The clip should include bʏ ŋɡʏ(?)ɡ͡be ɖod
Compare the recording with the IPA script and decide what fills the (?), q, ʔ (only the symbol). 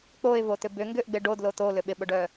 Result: ʔ